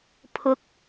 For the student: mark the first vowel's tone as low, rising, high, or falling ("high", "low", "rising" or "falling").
rising